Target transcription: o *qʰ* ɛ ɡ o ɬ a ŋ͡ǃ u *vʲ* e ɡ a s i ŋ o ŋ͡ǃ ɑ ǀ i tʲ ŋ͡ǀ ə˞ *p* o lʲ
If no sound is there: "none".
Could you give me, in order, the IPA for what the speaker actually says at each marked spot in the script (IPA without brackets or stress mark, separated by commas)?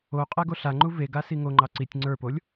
qʼ, v, p